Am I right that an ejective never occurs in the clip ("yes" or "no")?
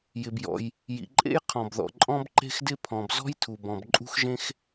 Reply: no